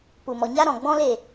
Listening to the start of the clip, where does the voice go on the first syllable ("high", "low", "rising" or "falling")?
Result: low